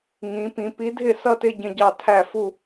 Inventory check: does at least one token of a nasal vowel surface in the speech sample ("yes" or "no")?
yes